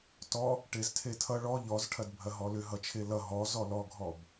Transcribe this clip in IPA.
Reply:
t ɔ | ʈ e z tʰ e tʰ ʌ ɭ ɔ ʎ ɔ z ʈʰ ɐ d bʱ ɐ ɦ ɔ l ʏ ɦ ʌ t͡ʃʰ e l ʌ ɦ ɔ z ɔ l ɔ ɡʱ ɔ b

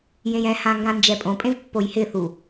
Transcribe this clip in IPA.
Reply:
j ẽ j ɛ̃ h ã ŋ ɡ ã n d͡ʒ ɛ pʼ õ pʼ ẽ v pː o j h ɪ θ u

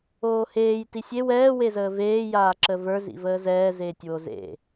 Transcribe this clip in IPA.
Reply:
oː h eː j t i sʲ e w ɛː w e z əː v eː j aː ǁ ə v ə˞ z ḭ v əː z ɛː z eː tʲ w o z ḛ

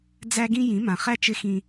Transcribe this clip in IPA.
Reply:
d͡z æ˦ ɡ ĩ˦ j ĩ˨˦ m ã˨ χ æ˦ t͡ʃ ɪ˦ x ĩ˦

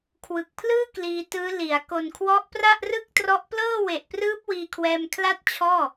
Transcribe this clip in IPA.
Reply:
kʰ w ɯ˨˩ k̚ pʰ l ɯː˥˩ k l iː˧ t ɯː˦˥ l i˩˦ a̯ k o˨˩ n kʰ w ɔ˦˥ ʔ p r a˥˩ ʔ r ɯ˥˩ k̚ t r ɔ˦˥ ʔ p l ɤː˥˩ w e˨˩ ʔ p r ɯː˦˥ p̚ w iː˧ kʰ w ɛː˧ m kʰ l a˥˩ t̚ t͡ɕʰ ɔː˥˩

